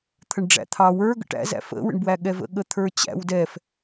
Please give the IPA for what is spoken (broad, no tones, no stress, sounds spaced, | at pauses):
t̪ʰ ə ɳ ɖ͡ʐ æ̰ t̪ʰ ɑ w ə˞ ɡ ə̰ ʈ æ̰ z æ̰ f ə̰ w ə̰ ɳ b w æ ɠ ɛ v ə̰ ɠ ə t̪ʰ ə˞ t͡ɕ æ̰ w d ɛ f